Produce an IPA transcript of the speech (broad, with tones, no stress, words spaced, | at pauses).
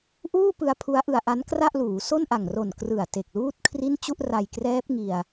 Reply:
ʔuː˥˩pɯ˧a̯ pʰu˦˥a̯ʔɯ˧a̯ʔa˦˥n kra˥˩ʔluː˩˦ so˥˩nʔa˨˩ŋro˨˩n krɯ˨˩a̯ te˨˩k̚luː˥˩t̚kʰri˥˩n t͡ɕu˥˩ʔra˧jkrɛː˦˥p̚ŋi˧a̯